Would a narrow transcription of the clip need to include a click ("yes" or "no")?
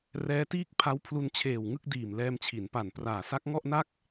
no